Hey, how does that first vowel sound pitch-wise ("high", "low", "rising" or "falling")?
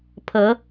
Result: rising